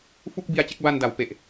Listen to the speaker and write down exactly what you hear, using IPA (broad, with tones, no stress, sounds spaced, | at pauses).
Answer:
f u˥˩ k̚ b i˧ a̯ t͡ɕ e˥˩ k̚ b a˧ n d a˩˦ w p e˨˩ ʔ